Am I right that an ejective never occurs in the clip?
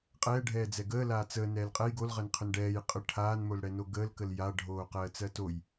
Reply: no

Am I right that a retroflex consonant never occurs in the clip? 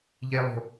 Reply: yes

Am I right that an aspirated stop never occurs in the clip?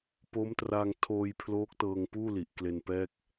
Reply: no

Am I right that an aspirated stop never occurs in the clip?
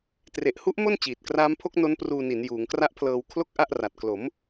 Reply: no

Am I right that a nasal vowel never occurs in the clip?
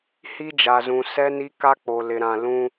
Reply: no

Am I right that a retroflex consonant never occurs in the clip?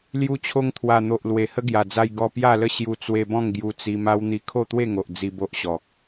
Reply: yes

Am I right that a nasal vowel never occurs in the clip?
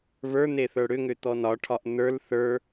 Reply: yes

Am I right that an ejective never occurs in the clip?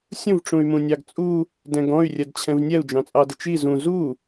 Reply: no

